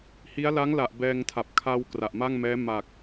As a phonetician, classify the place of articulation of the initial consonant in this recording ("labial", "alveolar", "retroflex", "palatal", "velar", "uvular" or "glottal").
glottal